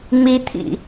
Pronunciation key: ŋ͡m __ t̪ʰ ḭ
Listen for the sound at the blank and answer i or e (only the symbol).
i